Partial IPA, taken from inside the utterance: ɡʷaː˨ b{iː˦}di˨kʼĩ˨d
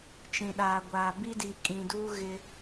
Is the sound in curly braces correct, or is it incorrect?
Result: incorrect